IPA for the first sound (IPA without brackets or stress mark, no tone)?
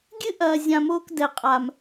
ɡʲ